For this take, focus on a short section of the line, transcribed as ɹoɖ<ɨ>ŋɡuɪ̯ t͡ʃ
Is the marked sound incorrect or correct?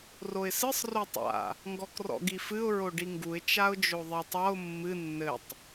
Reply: incorrect